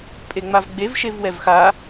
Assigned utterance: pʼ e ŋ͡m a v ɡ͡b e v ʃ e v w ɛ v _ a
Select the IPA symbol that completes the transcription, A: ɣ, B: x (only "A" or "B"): B